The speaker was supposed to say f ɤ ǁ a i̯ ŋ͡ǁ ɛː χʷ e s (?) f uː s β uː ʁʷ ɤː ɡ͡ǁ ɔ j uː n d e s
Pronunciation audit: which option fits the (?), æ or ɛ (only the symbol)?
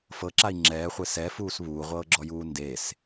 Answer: ɛ